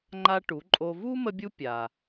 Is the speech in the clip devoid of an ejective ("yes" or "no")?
no